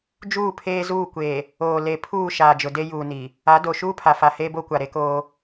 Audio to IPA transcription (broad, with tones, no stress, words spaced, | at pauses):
d͡ʒuː˦˨pʰeː˦zuː˦˨kʷeː˨ | oː˨ le˨ pʰuː˦˨ ʃaː˨d͡ʒʊ˨de˦juː˨ ni˨ | a˨˦ do˨ ʃuː˦pʰa˨fa˨ heː˦bo˦kʷa˨ ɾe˦koː˦